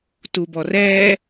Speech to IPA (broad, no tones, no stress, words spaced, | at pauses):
tubɔrɛː